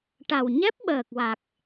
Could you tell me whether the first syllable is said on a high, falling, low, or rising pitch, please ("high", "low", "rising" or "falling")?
low